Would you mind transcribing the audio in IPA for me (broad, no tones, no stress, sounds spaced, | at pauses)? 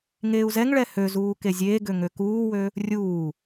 ŋ eː u̯ z ɛ ŋ ɭ ɛ h ø z uː k e zʲ eː ɡ ø ŋ ø k uː w ø | rʲ uː